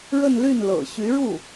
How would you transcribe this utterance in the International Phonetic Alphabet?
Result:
ɻ ə˥˧ n l y˥˩ n l ɤ̰˨˩ ɕ y˧˥ ɻ u˥˩

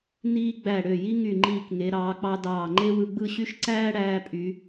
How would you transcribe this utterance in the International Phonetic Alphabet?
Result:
n iː˥ ɡ͡b æ˧˩ ɽ ø˧˩ j i˥ ŋ y˧˩ ŋ͡ǃ iː˧˩ k ŋ e˩˧ ɾ ɑː˩˧ k͡p ɑ˧ d ɑː˧˩ ŋ͡ǃ e˥ w ɯ˧ ɡ͡b ɯ˥˧ ɕ y˥ ʃ ǀ æː˥ ɽ æː˧ pʼ y˩˧

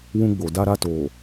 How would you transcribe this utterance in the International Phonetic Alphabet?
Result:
w ũ˦ ɡ͡b o˨ d a˦ ɾ a˦ t oː˨

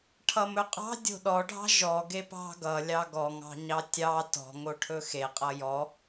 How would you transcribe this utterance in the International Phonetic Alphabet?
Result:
ʈʰ ʌ m ɵ qʼ ɑ̤ dʲ o̤ ɗ ɔ ɖʱ ɑ̤ ʒ ɔ ɡ e p ɑ̤ ɡ ʌ lʲ ɑ ɡ ɔ ŋ ɑ̤ ɲ ɑ tʲ ɑ t ɔ̤ ŋ o ʈʰ ɵ x e qʼ ʌ j ɔ

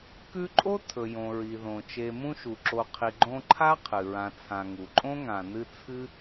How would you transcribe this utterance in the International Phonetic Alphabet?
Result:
k ʉ˦ ǃʼ o˥ tʰ ɵ˩ j õ˩ ɹ i˩ ð õ˩ t͡ʃ e˨ m ũ˦ ʃ u˩ ǁ o˨ qʰ i˨ ɡ͡ǃ õ˦ ǃʰ a˥ qʰ ɨ˩ ɹ ã˨ t͡sʰ ã˨ ŋ u˩ ǃʼ õ˥ ŋ ã˨ n ɨ˦ t͡sʰ ɨ˥

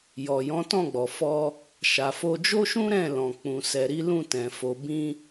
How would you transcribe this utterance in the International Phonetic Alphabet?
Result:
j ɔ˨ j ɔ̃˨˦ t ɔ̃˦˨ ɡ͡b ɔ˨ f ɔ˧ | ʃ a˨ f o˧ d͡ʒ o˦ ʃ ũ˦ ɾ ɛ̃˦˨ l ɔ̃˨ k͡p ũ˧ s ɛ˧ ɾ i˦ l ũ˦˨ t ɛ̃˨ f o˧ b ĩ˦

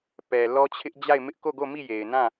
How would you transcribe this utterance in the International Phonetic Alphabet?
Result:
p ɛ˨ l ɔ˦ t͡ɕʰ ɪ˦ ʔ d͡ʑ a˦˨ ɪ̯ m ɪ˦ ʔ k o˦˨ ɡ o˦˨ m i˦˨ j e˨ ɪ̯ n ã˦˨

